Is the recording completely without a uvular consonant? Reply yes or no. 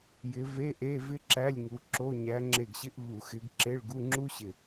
yes